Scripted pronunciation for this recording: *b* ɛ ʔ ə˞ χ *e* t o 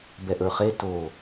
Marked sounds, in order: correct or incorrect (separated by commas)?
correct, correct